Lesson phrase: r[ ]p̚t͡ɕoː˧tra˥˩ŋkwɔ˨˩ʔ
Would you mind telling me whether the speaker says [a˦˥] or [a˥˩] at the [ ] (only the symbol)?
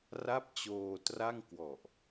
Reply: a˥˩